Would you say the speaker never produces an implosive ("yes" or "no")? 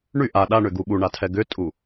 no